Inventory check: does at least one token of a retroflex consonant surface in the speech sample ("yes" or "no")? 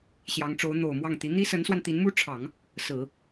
yes